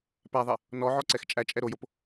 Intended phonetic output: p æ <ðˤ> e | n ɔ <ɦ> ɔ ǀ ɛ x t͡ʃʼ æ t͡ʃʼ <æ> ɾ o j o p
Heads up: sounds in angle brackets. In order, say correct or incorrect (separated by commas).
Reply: correct, incorrect, incorrect